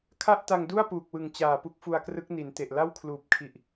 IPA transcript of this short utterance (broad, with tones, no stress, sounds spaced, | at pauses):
kʰ a˥˩ ʔ t a˧ ŋ d u˥˩ a̯ p uː˨˩ k̚ w ɯ˨˩ ŋ t͡ɕ aː˨˩ p u˦˥ k̚ f u˧ a̯ k r ɯ˦˥ k̚ n i˩˦ n t e˨˩ ʔ l a˥˩ w kʰ l uː˨˩ p̚ kʰ i˨˩ ʔ